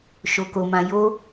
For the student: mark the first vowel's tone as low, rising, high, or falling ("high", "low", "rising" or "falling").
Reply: low